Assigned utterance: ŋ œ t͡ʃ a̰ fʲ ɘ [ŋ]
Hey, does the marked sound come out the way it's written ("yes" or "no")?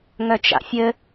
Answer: no